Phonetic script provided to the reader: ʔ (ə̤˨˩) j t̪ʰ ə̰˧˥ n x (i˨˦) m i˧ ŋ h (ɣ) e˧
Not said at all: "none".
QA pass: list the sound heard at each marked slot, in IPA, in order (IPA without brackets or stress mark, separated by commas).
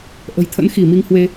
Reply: ə̤˨˩, i˧˩, w